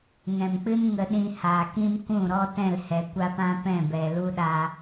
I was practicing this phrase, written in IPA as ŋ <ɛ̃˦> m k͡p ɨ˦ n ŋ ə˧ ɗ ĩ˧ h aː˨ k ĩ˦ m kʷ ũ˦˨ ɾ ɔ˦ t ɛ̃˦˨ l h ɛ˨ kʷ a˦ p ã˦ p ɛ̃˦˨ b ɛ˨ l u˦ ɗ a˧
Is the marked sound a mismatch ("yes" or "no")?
yes